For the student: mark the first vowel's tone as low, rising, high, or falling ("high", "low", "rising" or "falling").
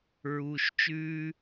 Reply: low